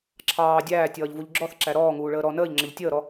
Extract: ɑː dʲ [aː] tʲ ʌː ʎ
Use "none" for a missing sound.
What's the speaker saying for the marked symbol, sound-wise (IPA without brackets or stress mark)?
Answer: æː